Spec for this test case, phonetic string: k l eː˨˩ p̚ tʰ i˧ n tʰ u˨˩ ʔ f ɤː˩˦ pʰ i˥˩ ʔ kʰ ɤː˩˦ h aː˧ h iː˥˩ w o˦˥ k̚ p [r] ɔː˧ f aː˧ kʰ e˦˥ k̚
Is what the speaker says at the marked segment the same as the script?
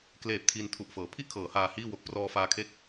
yes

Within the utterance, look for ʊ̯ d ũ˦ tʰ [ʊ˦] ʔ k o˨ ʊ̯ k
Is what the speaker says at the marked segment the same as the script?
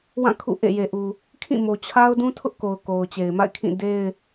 yes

